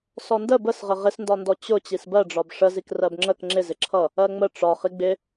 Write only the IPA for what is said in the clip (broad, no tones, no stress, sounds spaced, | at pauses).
s ɔ n d ə b ə s ʁ ə ʁ ɪ s n d ɒ n d ɔ t͡ɕ ʊ t͡ɕ i s b ɜ ɖ͡ʐ ɒ b ʂ ə z i k r ɜ b ŋ͡ǁ ə k ŋ͡ǁ ɪ z ɪ ǁʰ ʌ | ɜ ŋ͡m ə ʈ͡ʂ ɒ χ i ɡ͡b ɪ